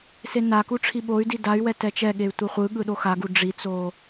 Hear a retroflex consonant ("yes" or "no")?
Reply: yes